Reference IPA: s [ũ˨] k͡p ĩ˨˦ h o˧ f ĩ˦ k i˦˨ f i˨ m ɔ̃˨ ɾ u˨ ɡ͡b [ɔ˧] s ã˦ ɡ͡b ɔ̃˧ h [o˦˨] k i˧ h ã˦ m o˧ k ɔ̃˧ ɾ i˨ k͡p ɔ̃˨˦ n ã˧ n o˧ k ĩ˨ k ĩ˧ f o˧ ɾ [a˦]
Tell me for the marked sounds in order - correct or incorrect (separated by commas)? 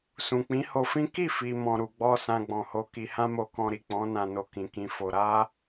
correct, correct, incorrect, correct